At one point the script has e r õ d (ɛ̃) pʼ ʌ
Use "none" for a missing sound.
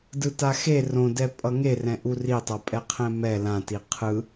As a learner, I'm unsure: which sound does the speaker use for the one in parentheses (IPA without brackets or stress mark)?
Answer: ɛ